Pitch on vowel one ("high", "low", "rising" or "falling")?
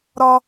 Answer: high